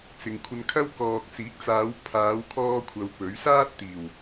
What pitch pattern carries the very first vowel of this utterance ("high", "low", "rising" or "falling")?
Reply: low